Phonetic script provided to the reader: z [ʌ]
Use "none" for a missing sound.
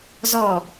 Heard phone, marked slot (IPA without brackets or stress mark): ɔ